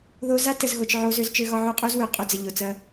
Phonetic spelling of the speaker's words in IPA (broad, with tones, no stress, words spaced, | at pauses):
ðo˦ za˦tə˨zɣo˨t͡ʃ ʕo˦ zø˦zt͡ʃø˦ɣɒ˦ʕʉ˦ qʼu˦zwø˨ qʼø˦d͡zə˨ʎo˨t͡sɐ˦